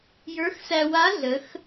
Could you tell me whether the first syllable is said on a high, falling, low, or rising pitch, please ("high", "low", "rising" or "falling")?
rising